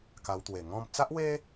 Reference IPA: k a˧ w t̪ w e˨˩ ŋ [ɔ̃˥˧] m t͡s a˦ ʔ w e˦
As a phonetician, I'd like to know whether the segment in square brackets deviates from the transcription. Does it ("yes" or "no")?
no